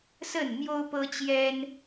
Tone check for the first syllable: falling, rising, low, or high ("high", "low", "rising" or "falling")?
falling